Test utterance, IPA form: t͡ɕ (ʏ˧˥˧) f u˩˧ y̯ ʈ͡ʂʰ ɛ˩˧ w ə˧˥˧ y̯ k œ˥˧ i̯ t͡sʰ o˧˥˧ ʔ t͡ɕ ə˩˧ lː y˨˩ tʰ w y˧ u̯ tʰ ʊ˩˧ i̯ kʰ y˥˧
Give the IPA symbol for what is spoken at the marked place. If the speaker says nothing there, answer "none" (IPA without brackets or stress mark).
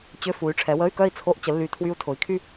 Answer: ʏ˧˥˧